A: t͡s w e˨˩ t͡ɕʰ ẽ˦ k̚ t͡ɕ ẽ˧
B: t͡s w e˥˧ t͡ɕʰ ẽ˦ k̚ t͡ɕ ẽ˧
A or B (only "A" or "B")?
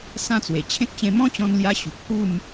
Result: A